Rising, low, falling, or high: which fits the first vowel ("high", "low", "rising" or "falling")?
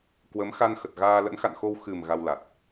rising